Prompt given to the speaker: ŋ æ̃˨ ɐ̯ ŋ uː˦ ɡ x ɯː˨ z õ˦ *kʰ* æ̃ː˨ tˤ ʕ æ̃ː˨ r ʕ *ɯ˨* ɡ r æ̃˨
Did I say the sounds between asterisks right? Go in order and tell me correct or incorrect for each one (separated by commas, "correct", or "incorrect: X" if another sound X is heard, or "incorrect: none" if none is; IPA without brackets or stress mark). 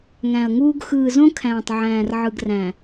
correct, correct